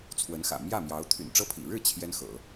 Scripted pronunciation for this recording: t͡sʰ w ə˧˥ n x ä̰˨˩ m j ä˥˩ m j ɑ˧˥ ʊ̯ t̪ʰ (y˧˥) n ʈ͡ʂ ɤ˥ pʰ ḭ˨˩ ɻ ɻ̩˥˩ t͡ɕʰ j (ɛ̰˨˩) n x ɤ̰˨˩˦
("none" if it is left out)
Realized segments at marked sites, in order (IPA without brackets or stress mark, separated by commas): y̰˨˩, ɛ˥